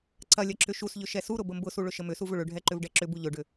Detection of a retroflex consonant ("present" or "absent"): present